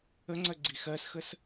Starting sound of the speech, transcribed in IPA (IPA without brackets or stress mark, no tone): ə